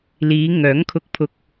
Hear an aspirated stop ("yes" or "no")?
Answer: yes